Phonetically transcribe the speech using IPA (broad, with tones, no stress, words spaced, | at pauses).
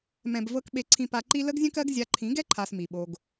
mɛ̃˨bvɤ˧k ɓe˧ǀʰĩ˧pa˧ǃi˦ lə˦ɡzʲə̃˦kɜ˦ɡ zʲa˧ ǃʰĩ˨˦ɡɛ˦ǃʰa˨s mi˨ɓo˧ɡ